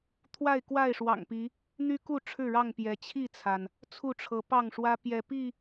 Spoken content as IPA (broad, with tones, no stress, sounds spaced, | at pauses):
t̪ʰ w a˥˨ ɪ̯ k w a˥˨ ɪ̯ ʂ w ɑ̰˨˩ ŋ p i˨˦ | n̪ y˦ k u˥˨ ʈ͡ʂʰ ɻ̩˥˨ ɻ ɑ˥˨ ŋ p j ɛ˨˦ t͡ɕʰ i˥˨ t͡sʰ a˩ n | t͡sʰ u˥˨ ʈ͡ʂʰ ɤ˨˦ p ɑ˥˨ ŋ ʂ w ä˦ p j ɛ˨˦ p i˥˨